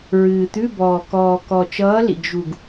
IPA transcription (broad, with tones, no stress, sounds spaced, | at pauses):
ɹ ɨː˨˩ t̪ ʉ˧˥˧ b ɔː˨˩ k ɔː˨˩ k ɔ˨˩ t͡ʃ ʌː˨˥ l ḭ˨˩ ɡ ʒ u˨˩ ɡ